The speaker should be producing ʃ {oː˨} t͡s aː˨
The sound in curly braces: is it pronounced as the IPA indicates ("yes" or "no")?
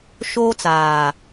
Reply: no